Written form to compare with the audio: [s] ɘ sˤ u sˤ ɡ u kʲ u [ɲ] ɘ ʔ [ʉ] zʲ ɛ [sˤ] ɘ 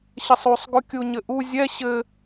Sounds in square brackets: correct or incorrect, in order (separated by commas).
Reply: incorrect, correct, incorrect, incorrect